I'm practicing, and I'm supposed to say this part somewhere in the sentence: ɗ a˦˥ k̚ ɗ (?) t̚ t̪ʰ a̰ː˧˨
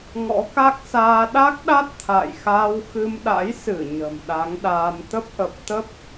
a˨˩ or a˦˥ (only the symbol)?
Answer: a˦˥